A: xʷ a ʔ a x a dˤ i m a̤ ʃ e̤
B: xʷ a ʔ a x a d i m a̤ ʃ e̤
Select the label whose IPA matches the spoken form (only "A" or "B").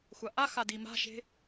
B